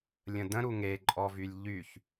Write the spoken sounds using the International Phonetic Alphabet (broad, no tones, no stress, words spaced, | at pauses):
lʲə̃də̃ ɾuŋeǃʼɔ vylʲʎyç